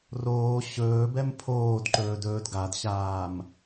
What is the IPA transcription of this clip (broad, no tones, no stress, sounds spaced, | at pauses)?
r oː ɕ ɵː b ɛ m pʰ oː d ǃ ɵː d ɵː d ɡ a d ɕ aː m